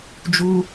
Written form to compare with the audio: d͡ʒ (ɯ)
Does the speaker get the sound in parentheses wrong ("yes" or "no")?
yes